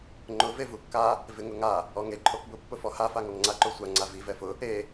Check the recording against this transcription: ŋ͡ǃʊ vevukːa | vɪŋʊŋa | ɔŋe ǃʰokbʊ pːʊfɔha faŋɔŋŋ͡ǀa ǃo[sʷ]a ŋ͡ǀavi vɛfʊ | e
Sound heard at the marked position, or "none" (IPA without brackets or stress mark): sʷ